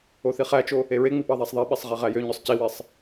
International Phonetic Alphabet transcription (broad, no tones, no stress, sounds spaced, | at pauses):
o θ i χ æ t͡ʃ o | e ɹ e ŋ͡m i p ɑ ðˤ æ sˤ ðˤ i ɓ e sˤ ʁ e ʁ æ j ø ɲ ø sˤ c i w e sˤ